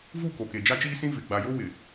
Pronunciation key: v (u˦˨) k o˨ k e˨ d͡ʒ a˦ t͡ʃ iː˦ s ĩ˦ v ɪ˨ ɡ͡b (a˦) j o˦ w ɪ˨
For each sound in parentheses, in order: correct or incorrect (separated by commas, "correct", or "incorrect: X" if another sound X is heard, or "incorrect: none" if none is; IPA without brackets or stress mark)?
correct, incorrect: a˨